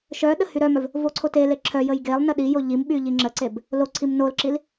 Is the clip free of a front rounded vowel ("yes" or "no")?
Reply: no